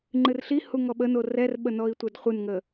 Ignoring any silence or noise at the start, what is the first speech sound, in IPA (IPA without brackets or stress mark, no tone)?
ŋ͡ǃ